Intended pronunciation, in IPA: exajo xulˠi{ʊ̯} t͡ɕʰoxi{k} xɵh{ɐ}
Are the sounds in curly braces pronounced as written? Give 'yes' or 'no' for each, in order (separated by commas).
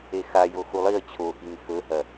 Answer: no, no, yes